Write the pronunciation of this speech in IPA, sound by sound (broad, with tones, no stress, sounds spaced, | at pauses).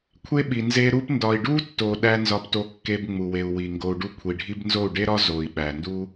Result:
kʷʰ e˦ ɓ i˨ n z e˧ ɾ u˧ p n d ɒ˨ i̯ ɖ u˦ tː o˨ ɗ æ˧ n z ɒ˧ p t o˧ kː e˧ b ŋ͡m u˨ w e˨ u̯ w i˨ ŋ ɡ o˧ u̯ ɖ u˦ kʷʰ i˨ ɖʱ i˦ b n z o˦˨ u̯ ɖ e˦ ɾ ɒ˦ z o˨ i̯ ɓ æ˨ n d u˦